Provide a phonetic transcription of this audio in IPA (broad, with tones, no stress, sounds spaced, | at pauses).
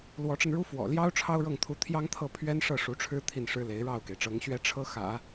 l w ɔ˧˥ ʈ͡ʂ ə˧ n ɻ u˥ f w ɔ̰˨˩ l j ɑ˥ ʊ̯ ʈ͡ʂʰ ɑ˥ ʊ̯ ɻ ɤ˥˩ ŋ t̪ʰ u˧˥ t̪ʰ j ɑ˥ ŋ t̪ʰ ɤ˥˩ pʰ ɥ ɛ˥ n ʂ ɤ˥˩ ʂ u˧˥ ʈ͡ʂʰ ɻ̩˥ t̪ʰ i˥˩ n ʂ ɻ̩˥ l e˧˥ ɪ̯ ɻ ɑ˥˩ ʊ̯ k e˩ ɪ̯ ʈ͡ʂ ɤ˧˥ ŋ ɕ ɥ ɛ˥ ʈ͡ʂʰ ɤ˥ x ä̰˨˩˦